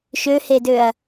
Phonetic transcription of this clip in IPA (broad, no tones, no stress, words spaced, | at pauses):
ʃøhedøɐ̯